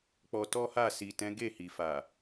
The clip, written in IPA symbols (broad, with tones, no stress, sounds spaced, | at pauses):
k͡p ɔ˧ t ɔ˦ h a˦˨ s i˨ t ɛ̃˨˦ ɡ e˦˨ h i˨ f a˨